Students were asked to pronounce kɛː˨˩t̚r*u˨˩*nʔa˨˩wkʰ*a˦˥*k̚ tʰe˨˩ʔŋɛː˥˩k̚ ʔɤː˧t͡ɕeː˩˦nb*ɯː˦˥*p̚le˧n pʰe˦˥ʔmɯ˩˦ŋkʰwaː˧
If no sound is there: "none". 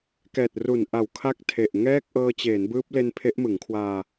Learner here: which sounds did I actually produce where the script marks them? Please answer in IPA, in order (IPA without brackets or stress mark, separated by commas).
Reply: u˨˩, a˦˥, ɯː˦˥